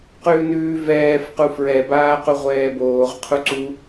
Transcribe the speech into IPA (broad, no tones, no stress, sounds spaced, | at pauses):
q ʉː n ʉː v ɛː f q u f ɹ ɛ b aː q u ʁʷ ɛː b oː ʁ qʰ u ǀ u